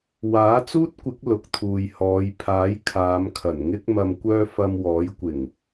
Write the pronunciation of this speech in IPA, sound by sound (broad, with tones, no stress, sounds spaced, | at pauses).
w aː˨˥ t͡s uː˥ t̚ kʷ ɪ˨˥ k̚ l ʊ˨ k̚ t̪ʰ uː˨ j h ɔː˨˧ j pʰ aː˨˥ j kʰ aː˨˧ m kʰ ɐ˨˩ n ŋ ɪ˥ k̚ m ɐ˨ m kʷ œː˧ f ɐ˧ m w ɔː˨˥ j kʷ ɪ˨˩ ŋ